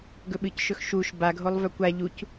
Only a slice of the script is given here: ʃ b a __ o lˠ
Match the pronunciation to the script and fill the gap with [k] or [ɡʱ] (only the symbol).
ɡʱ